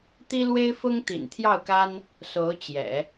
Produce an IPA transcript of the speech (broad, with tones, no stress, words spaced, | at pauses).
t̪i˥lwe˥ɪ̯fʊ˥ŋ t̪ḭ˨˩nt̪ʰjɑ˥˩ʊ̯ka˥n | so˧˥ʊ̯ t͡ɕjɛ̰˨˩˦